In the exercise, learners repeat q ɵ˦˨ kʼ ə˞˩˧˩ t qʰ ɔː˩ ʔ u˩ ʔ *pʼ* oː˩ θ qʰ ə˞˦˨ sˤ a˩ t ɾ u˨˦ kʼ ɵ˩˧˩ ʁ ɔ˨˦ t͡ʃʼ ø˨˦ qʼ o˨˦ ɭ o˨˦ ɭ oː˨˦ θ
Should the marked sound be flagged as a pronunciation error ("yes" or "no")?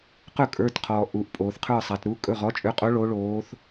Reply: no